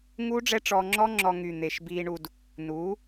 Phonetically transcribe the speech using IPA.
ŋuː˦ɖ͡ʐɛ˦ ʈ͡ʂɔː˧ŋ͡ǁɔ˦ŋ͡ǁɔ˧ ŋy˨ n̪eː˨ʃbiː˧ɳu˧d | nuː˨˦

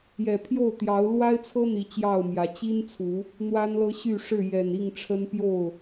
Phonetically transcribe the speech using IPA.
jɛ˨˩pʰjo˥˨ʊ̯t̪jɑ˨˦ʊ̯ lwa˦ɪ̯t͡sʰɤ˦ n̪i˨˦ t͡ɕjɑ˥˨ʊ̯mjä˨˦ t͡ɕi˦nt͡sʰu˨˦ | n̪wa˦nlɤ˦ɕy˥˨ʂɻ̩˥˨ jɛ˨˩n i˥˨ŋʈ͡ʂʰə˦npjo˥˨ʊ̯

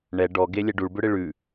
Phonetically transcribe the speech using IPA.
ɳɛ ɖɔɡe lʲɛɖuɭbʏɽɪ ɭʉ

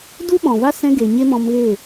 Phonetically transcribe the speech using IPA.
du˦ɓɔ̃˨va˦ sɛ̃˧ɡe˨ ɲe˦mɔ̃˧mɣe˦˨

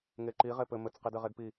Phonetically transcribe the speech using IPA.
ŋeǃi ʁepɘ mɘt͡s qidɘʁedpi

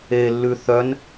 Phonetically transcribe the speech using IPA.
elːʉ θœn

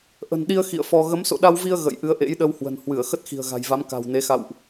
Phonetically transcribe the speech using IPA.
ʔə̤˨˩nɗi˧ə̯ xḭ˧˨ə̯fɔ˧ ɣə˨˦mso̰˧˨ɗa˧wvi˧ə̯ ɣə̰˧˨j ʔɨ˨˦ə̯ʔḛ˧˥jɗə˧w hwə̤˨˩n hwɨ˧˩ə̯ xə˦˥t̚xi̤˨˩ə̯ɣa̤˨˩jva˨˦m ka̤˨˩wne˨˦xa̰˧˨wʔ

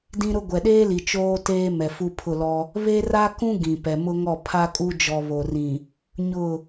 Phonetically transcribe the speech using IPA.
dĩ˦ɾʊ˦ ɡʷɛ˨ɗeː˦li˨ t͡ʃoː˦teː˦ mɛ˨ fu˦pʰʊ˦˨lɔ˦ | βe˦ra˦kũ˦ ɡĩ˨pɛ˨mʊ˦ŋɔ˦˨ pʰa˦kʼu˦d͡ʒɔ˨ βo˨rĩ˨ | ɲʊ˦˨

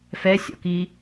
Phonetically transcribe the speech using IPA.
fɛsʲɔ̰kiː

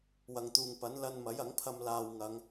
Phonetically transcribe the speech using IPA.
wɐ˨ŋt̪uː˨ŋ pɐ˨˥nlɐ˧n mɐ˨˥jɐ˨˥ŋpʰɐ˧m laː˧w ŋɐ˨˧ŋ

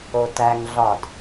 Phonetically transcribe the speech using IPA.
otæŋɮɒd

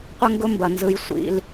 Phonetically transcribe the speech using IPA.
qʷə˦ŋɡʊ˦mbɐ˨ nzɯ˦j sʷḭ˦l

